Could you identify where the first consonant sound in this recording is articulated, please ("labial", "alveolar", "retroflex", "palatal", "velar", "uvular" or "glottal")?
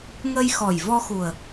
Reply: velar